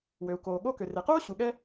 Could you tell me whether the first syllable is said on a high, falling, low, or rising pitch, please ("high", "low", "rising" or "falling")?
low